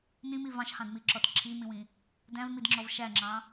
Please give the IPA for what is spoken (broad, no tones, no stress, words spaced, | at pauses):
nĩmi vɑ̃ʃhɑ̃dmiǁɔt ǁʰimĩwĩ | dæ̃vmidŋ͡ǁɔv ʃæŋ͡ǁɑ̃